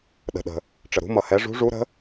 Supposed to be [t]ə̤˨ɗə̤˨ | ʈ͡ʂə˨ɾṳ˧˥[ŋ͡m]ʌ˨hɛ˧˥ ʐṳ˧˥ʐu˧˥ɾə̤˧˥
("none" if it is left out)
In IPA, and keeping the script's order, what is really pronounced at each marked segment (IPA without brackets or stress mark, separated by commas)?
ɗ, m